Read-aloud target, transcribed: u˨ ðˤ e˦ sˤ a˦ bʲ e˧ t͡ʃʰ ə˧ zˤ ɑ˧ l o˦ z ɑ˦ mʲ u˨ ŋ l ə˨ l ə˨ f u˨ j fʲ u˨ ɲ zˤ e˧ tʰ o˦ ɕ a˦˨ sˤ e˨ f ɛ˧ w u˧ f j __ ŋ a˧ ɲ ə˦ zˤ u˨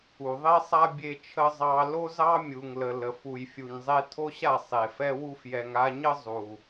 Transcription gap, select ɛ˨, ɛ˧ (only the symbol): ɛ˨